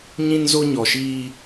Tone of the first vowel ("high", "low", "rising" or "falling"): high